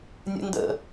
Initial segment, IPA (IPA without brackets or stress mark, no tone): nʲ